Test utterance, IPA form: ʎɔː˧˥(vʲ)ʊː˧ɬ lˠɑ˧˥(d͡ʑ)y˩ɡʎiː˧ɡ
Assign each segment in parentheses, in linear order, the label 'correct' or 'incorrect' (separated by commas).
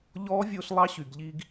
correct, incorrect